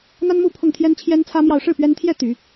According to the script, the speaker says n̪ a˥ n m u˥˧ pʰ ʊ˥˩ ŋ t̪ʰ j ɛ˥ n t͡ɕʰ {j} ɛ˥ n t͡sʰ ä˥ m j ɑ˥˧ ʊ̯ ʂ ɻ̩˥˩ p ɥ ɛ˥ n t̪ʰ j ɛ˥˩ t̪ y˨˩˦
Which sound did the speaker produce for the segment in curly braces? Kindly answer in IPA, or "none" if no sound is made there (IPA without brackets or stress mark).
j